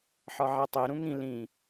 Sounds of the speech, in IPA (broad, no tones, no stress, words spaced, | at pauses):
ħɒʕætˤe ɾũŋĩ lĩ